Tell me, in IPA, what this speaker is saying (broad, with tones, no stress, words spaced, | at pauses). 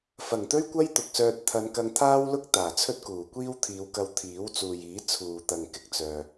fɐ˨˩ŋt̪ɵ˥ɥkʷɐ˥j t̪ʊ˨k̚sœː˧t̚ t̪ʰɐ˨˧nkɐ˧ŋt̪ʰaː˥wlʊ˥k̚ t̪aː˨˩t͡sʰɵ˥t̚kuː˨˩kʷiː˥w t̪ʰiː˨˧wkɐ˧w t̪ʰiː˨˥wt͡suː˨jiː˨˥ t͡sʰuː˨t̪ɐ˨ŋ kɪ˨k̚t͡sœː˨